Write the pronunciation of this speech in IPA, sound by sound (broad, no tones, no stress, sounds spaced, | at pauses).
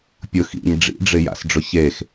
pʲ ʊ x ḭ ɲ ɖ͡ʐ ḭ ɖ͡ʐ ɪ j a̰ s ɖ͡ʐ ʊ ç e x